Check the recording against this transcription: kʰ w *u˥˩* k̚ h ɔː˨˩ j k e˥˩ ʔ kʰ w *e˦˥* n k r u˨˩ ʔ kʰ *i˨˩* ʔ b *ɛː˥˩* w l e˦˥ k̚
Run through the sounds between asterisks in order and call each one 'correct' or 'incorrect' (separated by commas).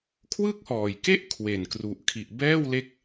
incorrect, incorrect, correct, correct